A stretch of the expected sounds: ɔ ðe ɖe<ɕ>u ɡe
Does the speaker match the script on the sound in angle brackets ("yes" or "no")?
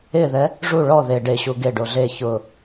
yes